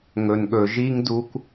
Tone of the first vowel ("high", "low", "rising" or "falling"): low